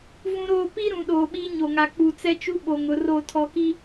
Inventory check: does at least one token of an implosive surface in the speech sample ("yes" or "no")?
yes